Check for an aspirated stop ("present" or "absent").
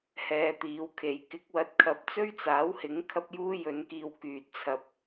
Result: present